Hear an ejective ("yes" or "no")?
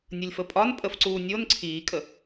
yes